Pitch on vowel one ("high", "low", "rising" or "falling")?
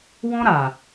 high